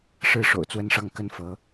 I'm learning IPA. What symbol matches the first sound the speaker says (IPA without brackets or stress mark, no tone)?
ʂ